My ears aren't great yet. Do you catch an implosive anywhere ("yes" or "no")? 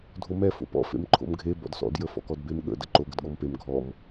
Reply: yes